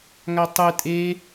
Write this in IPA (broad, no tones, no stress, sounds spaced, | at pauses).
ŋ a tˤ ɯ tʼ e